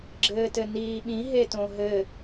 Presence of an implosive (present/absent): present